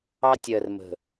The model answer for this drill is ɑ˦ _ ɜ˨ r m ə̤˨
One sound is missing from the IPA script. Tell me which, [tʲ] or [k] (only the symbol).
tʲ